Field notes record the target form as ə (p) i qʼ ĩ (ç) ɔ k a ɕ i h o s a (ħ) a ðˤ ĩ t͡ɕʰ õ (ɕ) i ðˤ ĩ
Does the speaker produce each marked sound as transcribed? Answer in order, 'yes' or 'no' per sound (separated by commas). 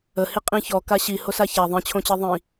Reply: no, yes, no, no